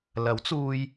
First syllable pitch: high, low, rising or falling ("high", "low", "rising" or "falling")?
rising